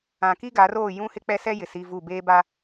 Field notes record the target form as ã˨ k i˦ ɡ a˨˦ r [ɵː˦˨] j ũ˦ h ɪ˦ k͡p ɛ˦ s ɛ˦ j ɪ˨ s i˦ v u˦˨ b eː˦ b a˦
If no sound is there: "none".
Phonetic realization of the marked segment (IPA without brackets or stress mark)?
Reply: oː˦˨